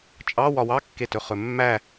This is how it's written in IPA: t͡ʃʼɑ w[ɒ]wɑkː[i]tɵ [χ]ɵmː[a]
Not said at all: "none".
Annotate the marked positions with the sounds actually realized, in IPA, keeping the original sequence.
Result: ɒ, e, χ, æ

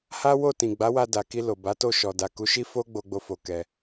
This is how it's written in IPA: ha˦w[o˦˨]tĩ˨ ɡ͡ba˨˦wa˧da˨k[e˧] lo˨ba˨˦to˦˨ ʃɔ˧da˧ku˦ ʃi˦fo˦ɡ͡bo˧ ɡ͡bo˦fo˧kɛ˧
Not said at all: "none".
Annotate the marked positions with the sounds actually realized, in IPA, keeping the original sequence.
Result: o˦˨, i˧

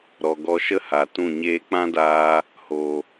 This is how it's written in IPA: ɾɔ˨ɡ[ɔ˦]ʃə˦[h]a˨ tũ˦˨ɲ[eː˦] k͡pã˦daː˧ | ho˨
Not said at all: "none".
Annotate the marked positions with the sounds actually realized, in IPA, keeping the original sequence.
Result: ɔ˧, h, eː˦

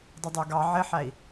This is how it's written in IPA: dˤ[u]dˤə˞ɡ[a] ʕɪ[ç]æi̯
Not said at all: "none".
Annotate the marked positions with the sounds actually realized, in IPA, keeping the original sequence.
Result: ʊ, ɑ, ħ

